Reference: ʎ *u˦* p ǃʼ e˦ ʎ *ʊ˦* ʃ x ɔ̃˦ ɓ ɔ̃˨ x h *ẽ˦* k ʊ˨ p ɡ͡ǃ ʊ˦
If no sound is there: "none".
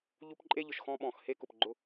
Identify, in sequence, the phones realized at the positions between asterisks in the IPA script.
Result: u˦, ʊ˨, e˦

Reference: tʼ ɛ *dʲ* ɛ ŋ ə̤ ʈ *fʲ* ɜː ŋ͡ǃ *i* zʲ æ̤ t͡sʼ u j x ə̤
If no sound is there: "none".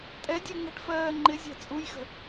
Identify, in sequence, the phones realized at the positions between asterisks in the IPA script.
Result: dʲ, f, ɪ

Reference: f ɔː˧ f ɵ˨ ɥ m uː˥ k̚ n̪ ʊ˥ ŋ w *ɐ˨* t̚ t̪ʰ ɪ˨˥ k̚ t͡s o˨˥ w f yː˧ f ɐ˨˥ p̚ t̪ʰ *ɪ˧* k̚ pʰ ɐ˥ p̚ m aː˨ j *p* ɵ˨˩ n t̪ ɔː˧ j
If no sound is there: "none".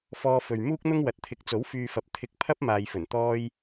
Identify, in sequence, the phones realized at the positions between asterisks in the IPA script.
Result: ɐ˨, ɪ˧, f

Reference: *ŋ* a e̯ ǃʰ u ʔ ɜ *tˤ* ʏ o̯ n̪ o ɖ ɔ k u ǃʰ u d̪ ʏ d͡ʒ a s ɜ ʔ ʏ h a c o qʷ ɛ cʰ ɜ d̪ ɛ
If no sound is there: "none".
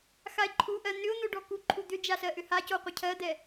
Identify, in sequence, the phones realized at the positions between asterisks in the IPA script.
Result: x, n̪

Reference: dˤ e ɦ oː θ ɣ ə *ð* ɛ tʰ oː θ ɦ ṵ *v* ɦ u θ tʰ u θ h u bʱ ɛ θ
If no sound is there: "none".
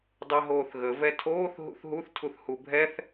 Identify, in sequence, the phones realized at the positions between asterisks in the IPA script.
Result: v, θ

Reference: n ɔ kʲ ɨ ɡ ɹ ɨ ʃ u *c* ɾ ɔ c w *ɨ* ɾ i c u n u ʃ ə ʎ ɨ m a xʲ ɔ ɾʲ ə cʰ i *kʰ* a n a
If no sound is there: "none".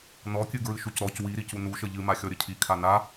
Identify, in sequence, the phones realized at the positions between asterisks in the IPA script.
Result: c, i, kʰ

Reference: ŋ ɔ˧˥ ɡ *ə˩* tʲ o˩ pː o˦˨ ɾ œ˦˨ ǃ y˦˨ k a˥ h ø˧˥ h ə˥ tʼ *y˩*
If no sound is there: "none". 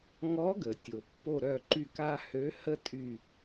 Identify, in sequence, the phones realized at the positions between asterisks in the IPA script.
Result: ə˩, y˦˨

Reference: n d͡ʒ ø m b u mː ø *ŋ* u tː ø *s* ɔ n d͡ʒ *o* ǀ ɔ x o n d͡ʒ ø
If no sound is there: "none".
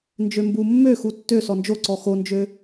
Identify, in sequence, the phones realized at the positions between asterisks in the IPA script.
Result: x, s, o

